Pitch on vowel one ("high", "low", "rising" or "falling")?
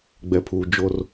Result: low